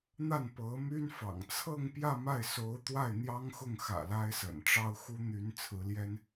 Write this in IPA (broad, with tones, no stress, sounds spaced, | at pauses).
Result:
n̪ a˥˩ n p ɤ˧˥ m y˥ n f ɑ̰˨˩ ŋ t͡sʰ ɤ˥˧ ŋ p j ä˥˧ m a˥˩ ɪ̯ s o˧˥ ʊ̯ t̪ w a˥˩ ɪ̯ n̪ j ɑ˥ ŋ x ʊ˥˩ ŋ x ä̰˨˩ l a˥ ɪ̯ s ə̰˨˩ n ʈ͡ʂ ɑ˥ ʊ̯ x u˥ n̪ y˧˥ n t͡sʰ ɹ̩˧˥ l j ɛ˥ n